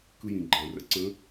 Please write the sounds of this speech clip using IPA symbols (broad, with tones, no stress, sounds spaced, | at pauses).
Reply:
k ɯ˧ j ĩ˩ ɡ͡ǃ ã˩ r ə̰˧˥ ǀ ə̃˧˥